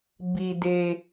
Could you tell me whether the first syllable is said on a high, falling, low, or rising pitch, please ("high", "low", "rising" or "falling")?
low